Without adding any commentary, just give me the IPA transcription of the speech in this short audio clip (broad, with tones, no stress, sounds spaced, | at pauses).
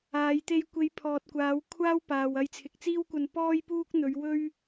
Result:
aː˨˧ j t̪ e˧ j kʷ e˨˧ j pʰ ɔː˨ t̚ kʷ aː˨˧ w kʷʰ aː˥ w p aː˨ w ɐ˧ j t͡sʰ ɪ˨ k̚ t͡s iː˥ w kʷ ɐ˧ n p ɔː˥ j p uː˥ k̚ n̪ ɵ˨˧ ɥ w ɵ˥ ɥ